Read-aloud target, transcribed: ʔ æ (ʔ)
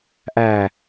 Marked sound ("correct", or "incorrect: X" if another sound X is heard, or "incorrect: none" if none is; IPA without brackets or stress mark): incorrect: none